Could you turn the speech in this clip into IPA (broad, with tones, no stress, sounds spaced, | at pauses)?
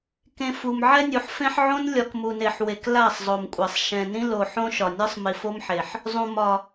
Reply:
k ẽ˨ f u˨ m ʕ ɛ˦ nʲ u˨ ħ f ẽ˦ ħ ʕ õ˦ n lʲ ɒ˨ k m u˨ n e˨ ħ w e˨ k l a˦˨ sˤ zˤ o˨ m kʷʼ a˨ sˤ ʃ ɛ̃˨ n ĩ˦ l o˨ ħ õ˦ ʃ ɒ˨ nʲ ɒ˦ sˤ m i˨ f o˦ m ħ e˨ ħ | zˤ ũ˨ m ɒ˨